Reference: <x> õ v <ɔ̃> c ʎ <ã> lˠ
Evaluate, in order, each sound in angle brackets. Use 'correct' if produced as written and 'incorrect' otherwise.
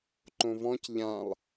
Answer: incorrect, correct, correct

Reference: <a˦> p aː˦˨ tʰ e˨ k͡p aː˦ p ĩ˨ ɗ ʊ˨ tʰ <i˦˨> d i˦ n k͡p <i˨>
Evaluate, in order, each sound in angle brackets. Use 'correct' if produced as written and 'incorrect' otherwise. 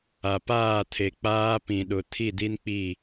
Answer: incorrect, correct, incorrect

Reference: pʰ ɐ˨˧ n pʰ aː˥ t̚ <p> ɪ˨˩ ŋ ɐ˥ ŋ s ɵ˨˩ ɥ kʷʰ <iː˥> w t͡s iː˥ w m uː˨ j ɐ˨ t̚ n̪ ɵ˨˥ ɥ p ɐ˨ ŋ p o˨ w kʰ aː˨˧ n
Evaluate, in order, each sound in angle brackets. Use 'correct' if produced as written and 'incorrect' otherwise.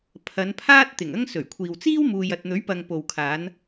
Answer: incorrect, incorrect

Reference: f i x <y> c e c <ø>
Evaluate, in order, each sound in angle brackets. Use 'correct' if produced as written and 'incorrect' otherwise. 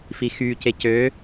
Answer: correct, correct

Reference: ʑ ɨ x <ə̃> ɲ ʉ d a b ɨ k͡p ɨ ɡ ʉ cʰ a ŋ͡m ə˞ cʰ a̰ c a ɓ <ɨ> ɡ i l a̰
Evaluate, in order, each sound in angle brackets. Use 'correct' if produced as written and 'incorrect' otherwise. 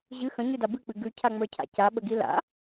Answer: correct, incorrect

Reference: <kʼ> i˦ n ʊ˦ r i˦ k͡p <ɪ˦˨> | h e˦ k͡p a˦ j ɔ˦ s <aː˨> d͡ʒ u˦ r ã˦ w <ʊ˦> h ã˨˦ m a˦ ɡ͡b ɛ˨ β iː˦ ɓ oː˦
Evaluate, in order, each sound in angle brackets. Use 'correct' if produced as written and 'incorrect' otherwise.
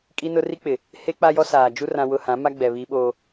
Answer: correct, incorrect, correct, correct

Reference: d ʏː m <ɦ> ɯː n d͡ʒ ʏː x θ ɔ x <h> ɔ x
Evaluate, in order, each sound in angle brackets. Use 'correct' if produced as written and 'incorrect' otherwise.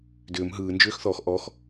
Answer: correct, incorrect

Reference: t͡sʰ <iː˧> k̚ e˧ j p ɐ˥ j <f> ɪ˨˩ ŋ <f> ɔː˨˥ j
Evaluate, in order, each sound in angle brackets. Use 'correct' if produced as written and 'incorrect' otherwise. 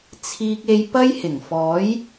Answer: correct, incorrect, correct

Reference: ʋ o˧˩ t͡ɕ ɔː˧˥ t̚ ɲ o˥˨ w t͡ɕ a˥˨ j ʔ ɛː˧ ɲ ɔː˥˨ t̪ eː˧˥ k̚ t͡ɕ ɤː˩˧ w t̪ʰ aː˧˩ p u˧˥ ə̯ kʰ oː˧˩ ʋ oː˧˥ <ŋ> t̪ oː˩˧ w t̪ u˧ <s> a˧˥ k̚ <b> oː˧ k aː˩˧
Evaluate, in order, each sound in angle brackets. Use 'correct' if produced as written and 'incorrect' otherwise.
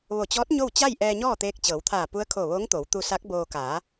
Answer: correct, correct, correct

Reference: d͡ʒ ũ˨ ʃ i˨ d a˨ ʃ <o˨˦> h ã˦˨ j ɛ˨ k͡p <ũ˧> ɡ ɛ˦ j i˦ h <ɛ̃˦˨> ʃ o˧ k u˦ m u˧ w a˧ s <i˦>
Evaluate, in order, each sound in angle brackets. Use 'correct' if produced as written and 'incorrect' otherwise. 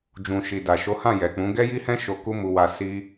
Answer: correct, incorrect, incorrect, correct

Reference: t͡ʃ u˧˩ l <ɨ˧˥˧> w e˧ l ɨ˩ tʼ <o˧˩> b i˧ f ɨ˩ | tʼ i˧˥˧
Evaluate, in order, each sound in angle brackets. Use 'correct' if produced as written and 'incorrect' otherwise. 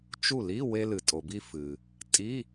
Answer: incorrect, incorrect

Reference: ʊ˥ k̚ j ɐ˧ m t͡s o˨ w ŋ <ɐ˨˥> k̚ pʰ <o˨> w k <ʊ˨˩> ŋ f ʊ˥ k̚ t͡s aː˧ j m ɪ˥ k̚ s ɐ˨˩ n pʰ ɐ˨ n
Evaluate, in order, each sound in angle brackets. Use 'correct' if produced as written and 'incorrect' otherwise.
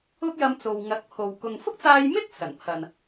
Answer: correct, correct, incorrect

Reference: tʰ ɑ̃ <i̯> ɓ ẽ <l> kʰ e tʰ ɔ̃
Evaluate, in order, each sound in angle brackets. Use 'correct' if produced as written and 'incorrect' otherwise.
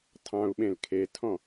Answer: incorrect, correct

